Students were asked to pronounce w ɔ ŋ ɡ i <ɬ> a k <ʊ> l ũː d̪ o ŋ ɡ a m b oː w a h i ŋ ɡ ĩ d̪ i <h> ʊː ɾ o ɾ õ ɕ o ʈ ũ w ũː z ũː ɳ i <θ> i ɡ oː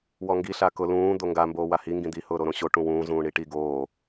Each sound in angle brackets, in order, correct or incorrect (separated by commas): correct, correct, correct, incorrect